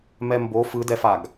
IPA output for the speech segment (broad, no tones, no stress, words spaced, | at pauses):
mɛmbo fɯdɛfaɡ